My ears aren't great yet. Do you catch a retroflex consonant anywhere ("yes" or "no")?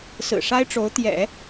yes